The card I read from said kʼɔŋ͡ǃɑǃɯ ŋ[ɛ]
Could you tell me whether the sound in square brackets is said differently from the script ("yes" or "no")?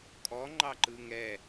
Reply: no